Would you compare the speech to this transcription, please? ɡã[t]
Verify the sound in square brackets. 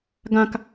incorrect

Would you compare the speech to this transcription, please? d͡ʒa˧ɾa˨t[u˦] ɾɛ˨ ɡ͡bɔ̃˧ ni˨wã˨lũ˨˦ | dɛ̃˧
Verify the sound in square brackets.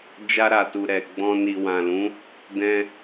incorrect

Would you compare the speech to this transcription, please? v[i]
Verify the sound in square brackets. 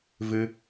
incorrect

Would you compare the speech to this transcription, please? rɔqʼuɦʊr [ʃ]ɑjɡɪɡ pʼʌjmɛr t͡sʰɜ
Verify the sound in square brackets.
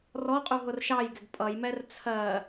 correct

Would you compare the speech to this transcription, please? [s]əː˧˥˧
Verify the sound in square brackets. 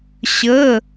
incorrect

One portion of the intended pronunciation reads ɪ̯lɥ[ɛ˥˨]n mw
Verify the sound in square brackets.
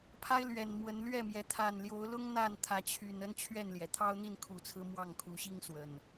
incorrect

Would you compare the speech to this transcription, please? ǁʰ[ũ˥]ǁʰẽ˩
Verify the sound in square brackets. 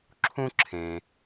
correct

